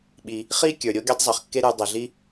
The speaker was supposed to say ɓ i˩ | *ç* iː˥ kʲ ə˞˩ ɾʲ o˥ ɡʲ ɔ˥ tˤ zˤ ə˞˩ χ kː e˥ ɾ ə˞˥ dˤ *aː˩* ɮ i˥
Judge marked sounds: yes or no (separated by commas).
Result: no, no